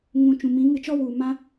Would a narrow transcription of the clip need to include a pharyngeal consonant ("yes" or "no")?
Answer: no